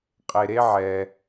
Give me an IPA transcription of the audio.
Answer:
qʼ e˧ ɾ e˥ ʕ ɛ˧

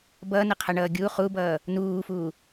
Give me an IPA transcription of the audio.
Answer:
b ʌː n ə qʰ ʌ ɳ ʌː ɡʲ u χ u b ʌː | n uː f u

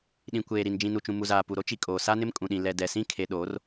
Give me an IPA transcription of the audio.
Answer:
ɗ ĩ˨ kʷ eː˨ ɾ i˨ n d͡ʒ ĩ˨ n u˨ t͡ʃ ũ˨ m u˨ z aː˨ p u˨ ɾ o˦ t͡ʃ i˨ kʼ oː˨ s a˦ n ɪ˦ m kʼ ũ˨ ɗ ĩ˨ l ɛ˨ d ɛ˨ s ĩ˦˨ kʰ e˨ ɗ oː˨˦ r

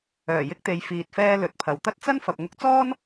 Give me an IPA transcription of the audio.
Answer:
œː˨˩ j ɪ˧ k̚ t̪ e˨˧ j f iː˧ t̚ f ɛː˥ l ɵ˨˥ t̚ pʰ ɐ˨ w t̪ ɐ˥ t̚ t͡s ɐ˥ n f ɐ˨ p̚ ŋ ʊ˧ k̚ t͡s ɔː˥ n

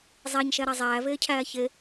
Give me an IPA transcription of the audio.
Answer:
zˤ æ ɲ ʃ æ ɾ a zˤ æː v eː cʰ æː ç e

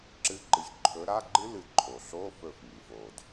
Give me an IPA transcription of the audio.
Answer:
ǁ ɨ˧˥˧ ǃ ɨ˧˩ ç ǃʰ ɵ˨˦ ɾ a˧˥˧ ɡ͡ǃ ɨ˦˥ l ɨ˧˩ ǃʰ o˩ ɬ o˧˥˧ f ɵ˧˩ f ŋ i˩ f o˩ d

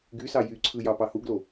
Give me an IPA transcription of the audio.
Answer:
ɡ y s ɑ j y ǀʰ ɯ j ɑ p ɑ h u ɡ l o

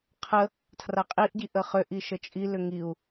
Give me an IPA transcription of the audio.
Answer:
qʰ ə | tʰ r a qʼ i ʔ ɟ i ʔ ə χ ʏ ʔ i ʃ ə t͡ʃʼ i l ʏ ŋ i u̯

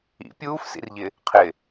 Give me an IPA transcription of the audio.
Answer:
ḭ pʲ uː f s ḭ r ʎ ɪ | qʰ ɪ

